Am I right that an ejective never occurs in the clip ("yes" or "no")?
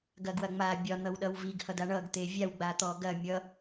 yes